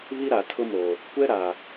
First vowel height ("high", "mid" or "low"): high